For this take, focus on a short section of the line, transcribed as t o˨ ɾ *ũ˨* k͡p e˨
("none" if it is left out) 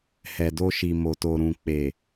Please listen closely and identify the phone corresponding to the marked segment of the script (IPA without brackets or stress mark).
ũ˨